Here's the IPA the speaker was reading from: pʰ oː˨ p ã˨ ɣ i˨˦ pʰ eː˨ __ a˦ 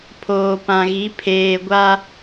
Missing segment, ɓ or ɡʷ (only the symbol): ɡʷ